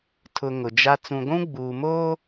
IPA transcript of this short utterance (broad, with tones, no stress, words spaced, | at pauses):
tʰʊ˨ ŋʊ˨d͡ʒa˦ t͡sũ˨ɡʷũ˦ ɡ͡buː˨moː˦